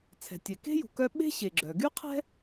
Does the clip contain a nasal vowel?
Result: no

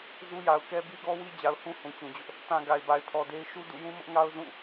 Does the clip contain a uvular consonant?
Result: no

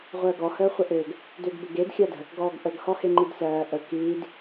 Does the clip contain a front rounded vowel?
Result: yes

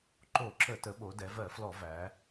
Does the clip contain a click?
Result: yes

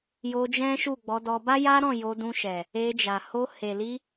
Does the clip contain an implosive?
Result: no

